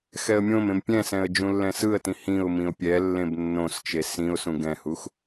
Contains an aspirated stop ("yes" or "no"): no